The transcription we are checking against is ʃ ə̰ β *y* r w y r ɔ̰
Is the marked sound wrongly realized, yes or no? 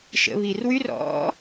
yes